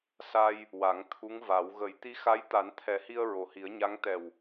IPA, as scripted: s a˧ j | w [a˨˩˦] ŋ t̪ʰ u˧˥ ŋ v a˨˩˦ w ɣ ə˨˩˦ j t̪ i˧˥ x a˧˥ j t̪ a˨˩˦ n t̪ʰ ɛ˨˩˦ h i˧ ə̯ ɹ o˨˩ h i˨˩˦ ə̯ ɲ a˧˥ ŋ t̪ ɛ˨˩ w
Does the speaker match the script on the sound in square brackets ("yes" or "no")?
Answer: yes